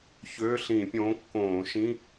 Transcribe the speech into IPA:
çøː˧˥˧ ɬĩː˧˩˧pʲõː˨˥ kːõː˧˩˧ ʃĩ˧˥˧

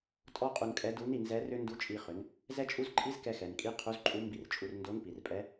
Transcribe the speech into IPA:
tʼɔ˥qʼu˧nkʼɛ˧˥du˧˥n i˩˧nzɛ˧˥ rʏ˥ ndu˧˥t͡ʃʼi˧χʏ˩˧n | zɛ˥t͡ʃʼu˥zǃʼi˥z kɛ˧xɛ˩nkʼi˧˥ qʰu˧˥zǃʼu˧˥mbi˧rt͡ʃʼu˧r ndo˧˥npi˩rpʼɛ˧˥

